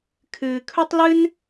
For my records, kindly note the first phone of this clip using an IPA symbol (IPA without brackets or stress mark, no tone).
kʰ